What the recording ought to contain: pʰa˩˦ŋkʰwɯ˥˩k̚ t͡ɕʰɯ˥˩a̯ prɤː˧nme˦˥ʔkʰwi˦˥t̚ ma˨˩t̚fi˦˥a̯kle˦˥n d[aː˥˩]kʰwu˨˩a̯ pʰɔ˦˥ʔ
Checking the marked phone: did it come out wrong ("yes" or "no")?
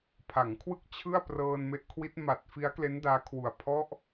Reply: yes